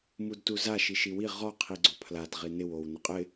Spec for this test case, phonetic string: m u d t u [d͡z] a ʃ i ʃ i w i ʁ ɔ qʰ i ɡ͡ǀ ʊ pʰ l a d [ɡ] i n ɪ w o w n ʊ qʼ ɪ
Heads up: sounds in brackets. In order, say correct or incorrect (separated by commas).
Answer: incorrect, incorrect